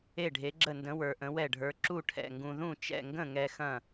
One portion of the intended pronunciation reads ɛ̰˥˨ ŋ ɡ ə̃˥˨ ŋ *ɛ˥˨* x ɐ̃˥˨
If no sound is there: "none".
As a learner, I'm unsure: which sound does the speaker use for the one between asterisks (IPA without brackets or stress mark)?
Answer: ɛ˧